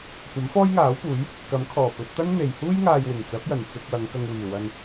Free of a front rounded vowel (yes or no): yes